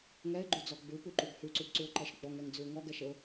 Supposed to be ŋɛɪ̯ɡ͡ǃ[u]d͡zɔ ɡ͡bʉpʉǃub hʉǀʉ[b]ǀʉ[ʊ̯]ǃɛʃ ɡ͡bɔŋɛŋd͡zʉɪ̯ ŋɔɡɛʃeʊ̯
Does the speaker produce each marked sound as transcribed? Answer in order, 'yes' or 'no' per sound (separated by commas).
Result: no, yes, yes